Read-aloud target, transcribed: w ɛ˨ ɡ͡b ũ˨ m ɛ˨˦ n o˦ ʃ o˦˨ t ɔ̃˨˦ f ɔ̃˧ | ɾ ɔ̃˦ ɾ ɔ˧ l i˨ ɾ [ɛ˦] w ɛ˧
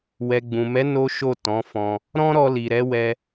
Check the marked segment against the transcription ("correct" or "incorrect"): incorrect